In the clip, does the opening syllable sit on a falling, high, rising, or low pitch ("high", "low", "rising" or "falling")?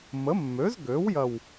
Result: rising